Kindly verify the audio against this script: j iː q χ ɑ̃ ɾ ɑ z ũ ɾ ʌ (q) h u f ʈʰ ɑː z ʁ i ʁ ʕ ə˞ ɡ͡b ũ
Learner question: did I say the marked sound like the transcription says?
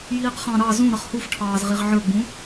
no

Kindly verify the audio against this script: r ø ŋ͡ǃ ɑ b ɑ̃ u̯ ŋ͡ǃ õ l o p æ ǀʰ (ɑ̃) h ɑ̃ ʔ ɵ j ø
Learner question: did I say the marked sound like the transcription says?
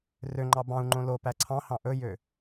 yes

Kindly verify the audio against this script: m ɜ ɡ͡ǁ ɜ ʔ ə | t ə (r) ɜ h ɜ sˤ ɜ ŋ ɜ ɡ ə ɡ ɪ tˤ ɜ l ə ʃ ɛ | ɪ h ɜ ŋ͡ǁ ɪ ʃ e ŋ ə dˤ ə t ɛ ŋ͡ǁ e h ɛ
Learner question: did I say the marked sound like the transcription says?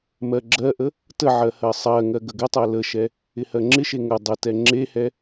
no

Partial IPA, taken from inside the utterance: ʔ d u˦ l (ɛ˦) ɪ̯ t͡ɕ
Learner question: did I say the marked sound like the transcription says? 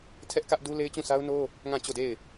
no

